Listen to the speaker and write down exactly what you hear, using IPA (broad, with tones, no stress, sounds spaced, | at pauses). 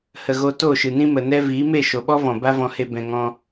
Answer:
h ə˨ ɣ o˧ t o˦˨ ʃ ɨ˨ n ĩ˦ m ə˨ n ɛ˦ v iː˨˦ m e˦˨ ʃ o˨ ɓ ɔ˦ v ɔ̃˨ b a˦ v ɔ̃˧ h e˧ b ɛ̃˨ ŋ ɔ̃˧